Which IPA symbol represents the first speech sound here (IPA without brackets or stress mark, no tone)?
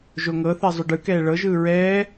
ʒ